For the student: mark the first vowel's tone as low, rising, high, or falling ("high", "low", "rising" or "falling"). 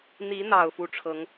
rising